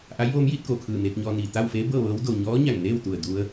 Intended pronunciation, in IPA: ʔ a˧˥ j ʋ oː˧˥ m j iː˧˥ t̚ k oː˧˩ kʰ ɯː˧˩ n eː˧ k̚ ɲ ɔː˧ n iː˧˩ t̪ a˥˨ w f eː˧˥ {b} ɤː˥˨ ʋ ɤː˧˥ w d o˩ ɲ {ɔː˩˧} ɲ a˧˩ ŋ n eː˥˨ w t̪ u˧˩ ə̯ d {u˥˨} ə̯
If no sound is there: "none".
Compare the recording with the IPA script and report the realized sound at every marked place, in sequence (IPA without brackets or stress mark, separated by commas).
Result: b, ɔː˧˥, u˧